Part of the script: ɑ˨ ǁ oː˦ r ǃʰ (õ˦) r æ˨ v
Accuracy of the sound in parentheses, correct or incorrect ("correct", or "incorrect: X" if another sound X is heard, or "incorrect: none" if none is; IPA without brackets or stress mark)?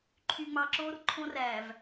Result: correct